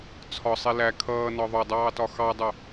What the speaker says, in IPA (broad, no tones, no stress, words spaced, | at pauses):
t͡sʰɒsˤi læ kʰʌːnɒ ðˤʊdˤɑːtɒ xɑdˤʊ